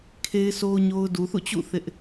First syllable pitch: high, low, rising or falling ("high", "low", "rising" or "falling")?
high